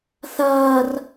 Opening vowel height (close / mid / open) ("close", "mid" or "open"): open